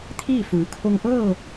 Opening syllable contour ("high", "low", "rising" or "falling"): falling